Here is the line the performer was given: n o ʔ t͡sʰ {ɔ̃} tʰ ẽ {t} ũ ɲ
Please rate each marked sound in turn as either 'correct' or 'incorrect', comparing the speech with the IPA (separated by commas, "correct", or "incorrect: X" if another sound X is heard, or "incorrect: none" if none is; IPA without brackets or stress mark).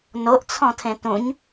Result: correct, correct